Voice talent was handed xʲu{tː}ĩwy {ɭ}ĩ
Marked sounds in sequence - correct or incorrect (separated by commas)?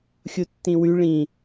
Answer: correct, correct